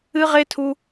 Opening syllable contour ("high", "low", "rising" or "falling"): high